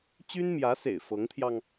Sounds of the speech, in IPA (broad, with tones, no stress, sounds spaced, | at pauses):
t͡ɕ y˥ n m j ä˧˥ s ḛ˨˩ ɪ̯ f ɤ˧˥ ŋ t̪ʰ j ɑ˧ ŋ